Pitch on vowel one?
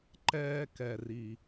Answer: high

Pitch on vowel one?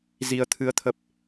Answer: rising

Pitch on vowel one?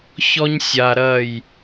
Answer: high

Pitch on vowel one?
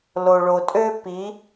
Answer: low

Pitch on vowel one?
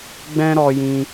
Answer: high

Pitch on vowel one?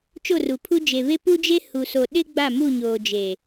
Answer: falling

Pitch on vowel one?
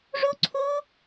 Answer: high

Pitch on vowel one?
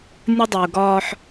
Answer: high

